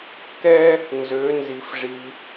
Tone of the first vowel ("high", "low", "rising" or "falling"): high